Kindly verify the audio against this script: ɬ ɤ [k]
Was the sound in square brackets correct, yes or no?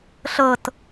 no